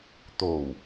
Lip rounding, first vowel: rounded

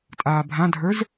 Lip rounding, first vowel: unrounded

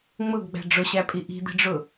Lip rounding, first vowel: rounded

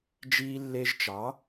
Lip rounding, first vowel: unrounded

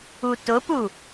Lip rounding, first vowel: rounded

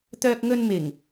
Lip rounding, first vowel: rounded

